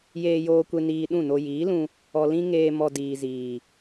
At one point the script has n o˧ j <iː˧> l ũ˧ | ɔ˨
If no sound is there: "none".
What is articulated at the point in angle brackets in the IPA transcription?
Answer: iː˨˦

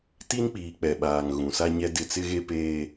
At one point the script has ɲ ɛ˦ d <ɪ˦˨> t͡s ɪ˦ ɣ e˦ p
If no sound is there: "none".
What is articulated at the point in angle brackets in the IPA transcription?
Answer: ɪ˦˨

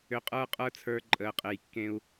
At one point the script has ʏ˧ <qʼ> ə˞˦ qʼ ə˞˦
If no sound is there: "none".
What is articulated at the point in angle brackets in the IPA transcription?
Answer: qʼ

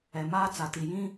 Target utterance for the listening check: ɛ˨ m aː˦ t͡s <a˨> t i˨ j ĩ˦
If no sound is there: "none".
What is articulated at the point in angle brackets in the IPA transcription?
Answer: a˨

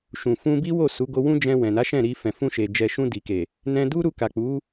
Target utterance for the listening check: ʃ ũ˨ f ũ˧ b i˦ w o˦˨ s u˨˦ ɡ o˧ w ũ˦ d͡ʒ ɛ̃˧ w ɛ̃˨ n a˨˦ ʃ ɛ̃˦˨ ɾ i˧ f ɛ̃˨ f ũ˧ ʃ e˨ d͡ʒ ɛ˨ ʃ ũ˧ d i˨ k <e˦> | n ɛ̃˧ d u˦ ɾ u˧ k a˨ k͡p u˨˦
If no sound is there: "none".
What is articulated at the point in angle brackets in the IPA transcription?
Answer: e˨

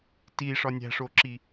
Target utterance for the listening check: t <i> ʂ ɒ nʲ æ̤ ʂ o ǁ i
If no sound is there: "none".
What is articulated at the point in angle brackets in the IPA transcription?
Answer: i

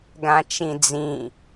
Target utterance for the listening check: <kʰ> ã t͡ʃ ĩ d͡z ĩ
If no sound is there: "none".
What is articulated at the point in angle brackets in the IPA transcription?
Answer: ɡ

